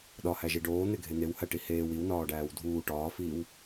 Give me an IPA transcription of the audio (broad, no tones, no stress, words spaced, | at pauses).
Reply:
ɗɒhæʒi ɖoːn̪eɡʱe n̪ewhæʈi heːw iwnɒːɖæːw dʱuː ʈɒːfiːw